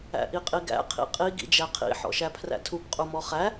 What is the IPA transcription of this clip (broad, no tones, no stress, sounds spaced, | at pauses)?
æ̰ ʔ i qʼ i ɡ æ̰ qʰ ḭ qʼ i ɡ ḭ d͡ʒ æ qʰ ḭ ħ ɔ̰ ʃ æ pʰ r æ̰ tʰ u p qʼ u m ɔ χ æ